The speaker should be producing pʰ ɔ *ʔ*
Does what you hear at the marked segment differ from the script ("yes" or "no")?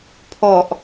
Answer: no